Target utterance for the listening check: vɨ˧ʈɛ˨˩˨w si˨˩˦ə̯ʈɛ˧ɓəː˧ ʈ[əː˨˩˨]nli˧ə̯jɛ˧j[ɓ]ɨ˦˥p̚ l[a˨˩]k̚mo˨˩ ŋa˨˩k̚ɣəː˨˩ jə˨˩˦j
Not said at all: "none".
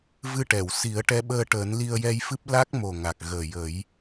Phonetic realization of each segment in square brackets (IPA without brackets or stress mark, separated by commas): əː˨˩˦, f, a˦˥